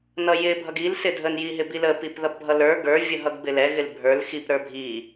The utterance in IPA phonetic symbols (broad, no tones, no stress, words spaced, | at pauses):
nʌjɪ bʱʌɡil sɪdʱən jiɦɪbilə pipðʌpbʱʌlə˞ ɡə˞ vʲəɦʌɡbɪlɛ ɣɪlbʱə˞l xip ɾə˞bʱi